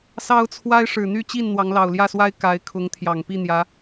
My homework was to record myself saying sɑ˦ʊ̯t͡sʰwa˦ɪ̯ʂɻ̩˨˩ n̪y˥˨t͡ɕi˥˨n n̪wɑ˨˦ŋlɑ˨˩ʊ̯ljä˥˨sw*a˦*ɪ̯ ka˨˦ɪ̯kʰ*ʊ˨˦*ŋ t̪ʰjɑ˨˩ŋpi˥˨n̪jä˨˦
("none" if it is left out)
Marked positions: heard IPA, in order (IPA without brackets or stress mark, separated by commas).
a˦, ʊ˨˦